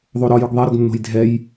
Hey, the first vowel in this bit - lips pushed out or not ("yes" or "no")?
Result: yes